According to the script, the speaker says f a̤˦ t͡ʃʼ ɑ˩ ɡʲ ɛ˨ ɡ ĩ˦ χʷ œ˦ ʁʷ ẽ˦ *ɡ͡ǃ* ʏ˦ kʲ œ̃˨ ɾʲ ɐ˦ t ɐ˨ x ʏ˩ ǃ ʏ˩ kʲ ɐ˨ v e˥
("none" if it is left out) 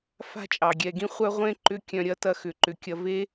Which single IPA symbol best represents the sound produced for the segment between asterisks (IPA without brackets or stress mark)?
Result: ǃ